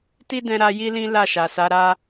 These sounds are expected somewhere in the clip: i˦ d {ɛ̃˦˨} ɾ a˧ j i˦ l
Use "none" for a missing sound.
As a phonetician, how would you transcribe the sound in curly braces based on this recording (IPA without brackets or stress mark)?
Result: ɛ̃˧